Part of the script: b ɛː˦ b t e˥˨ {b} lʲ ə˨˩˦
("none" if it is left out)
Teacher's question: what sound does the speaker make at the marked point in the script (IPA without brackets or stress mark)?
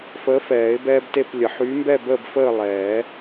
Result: p